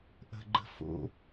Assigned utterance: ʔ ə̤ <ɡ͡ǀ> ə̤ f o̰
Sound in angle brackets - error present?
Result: yes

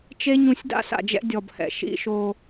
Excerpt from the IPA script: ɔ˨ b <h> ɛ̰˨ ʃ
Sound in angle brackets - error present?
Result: no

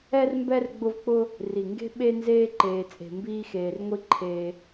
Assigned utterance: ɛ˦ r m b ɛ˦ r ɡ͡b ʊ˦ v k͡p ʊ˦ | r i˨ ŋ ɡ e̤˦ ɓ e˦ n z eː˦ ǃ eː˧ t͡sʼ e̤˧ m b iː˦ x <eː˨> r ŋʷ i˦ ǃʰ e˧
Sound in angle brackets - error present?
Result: yes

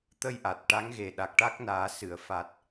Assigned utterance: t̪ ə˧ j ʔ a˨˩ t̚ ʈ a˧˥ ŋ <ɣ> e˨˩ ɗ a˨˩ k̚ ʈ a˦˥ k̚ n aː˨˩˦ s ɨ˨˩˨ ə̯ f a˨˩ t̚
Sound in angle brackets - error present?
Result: no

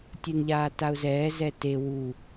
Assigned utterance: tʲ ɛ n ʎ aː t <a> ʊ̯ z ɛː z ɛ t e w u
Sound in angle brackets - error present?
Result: no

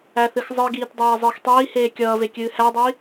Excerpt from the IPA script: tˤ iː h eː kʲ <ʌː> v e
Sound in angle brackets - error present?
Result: no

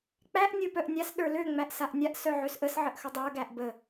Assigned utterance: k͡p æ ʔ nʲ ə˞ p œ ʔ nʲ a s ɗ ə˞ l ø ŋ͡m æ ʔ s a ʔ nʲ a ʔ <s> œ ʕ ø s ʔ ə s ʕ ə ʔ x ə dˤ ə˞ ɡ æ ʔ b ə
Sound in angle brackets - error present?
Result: no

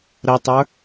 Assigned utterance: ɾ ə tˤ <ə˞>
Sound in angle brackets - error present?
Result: no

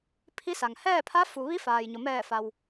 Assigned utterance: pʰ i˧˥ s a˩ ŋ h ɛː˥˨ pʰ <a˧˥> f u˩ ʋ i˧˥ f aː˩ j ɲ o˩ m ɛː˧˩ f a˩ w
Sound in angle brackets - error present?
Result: no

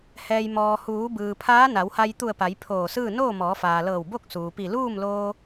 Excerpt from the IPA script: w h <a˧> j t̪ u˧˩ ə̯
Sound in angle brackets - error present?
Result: no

